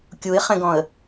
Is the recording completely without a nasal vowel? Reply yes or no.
no